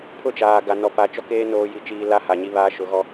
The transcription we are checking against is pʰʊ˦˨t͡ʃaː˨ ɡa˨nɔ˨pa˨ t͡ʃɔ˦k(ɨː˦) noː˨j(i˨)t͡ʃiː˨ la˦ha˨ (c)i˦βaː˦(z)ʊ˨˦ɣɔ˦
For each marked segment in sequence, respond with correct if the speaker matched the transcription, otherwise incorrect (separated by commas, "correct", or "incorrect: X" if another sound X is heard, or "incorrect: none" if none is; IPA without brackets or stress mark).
incorrect: eː˦, correct, incorrect: ɲ, incorrect: ʃ